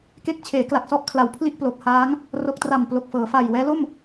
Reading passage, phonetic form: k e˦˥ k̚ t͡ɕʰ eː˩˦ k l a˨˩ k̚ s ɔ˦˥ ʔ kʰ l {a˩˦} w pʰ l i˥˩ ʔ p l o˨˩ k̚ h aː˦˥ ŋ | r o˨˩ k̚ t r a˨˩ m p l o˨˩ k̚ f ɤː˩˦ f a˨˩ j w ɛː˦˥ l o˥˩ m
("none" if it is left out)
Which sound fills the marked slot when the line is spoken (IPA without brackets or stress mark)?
a˨˩